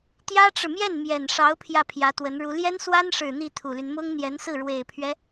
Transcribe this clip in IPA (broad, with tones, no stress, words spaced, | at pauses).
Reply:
t̪jä˥ʈ͡ʂɻ̩˨mjɛ˥˩n mjɛ˨˩nʂɑ˧˥ʊ̯ pʰjä˥˩pʰjä˧˥t̪wə˧˥nɻu˧˥ ljɛ˥nswa˥nʂɻ̩˨˩ n̪i˥˩t̪ʰu˨˩ly˦n mʊ˥ŋn̪jɛ˧˥nsɹ̩˥˩ ɻwe˨˩ɪ̯pʰɥɛ˦